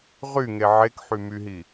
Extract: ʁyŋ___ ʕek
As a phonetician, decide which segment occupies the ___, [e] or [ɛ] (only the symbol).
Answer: e